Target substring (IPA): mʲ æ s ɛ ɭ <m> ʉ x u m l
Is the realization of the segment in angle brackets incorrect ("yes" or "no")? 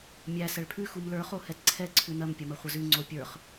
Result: yes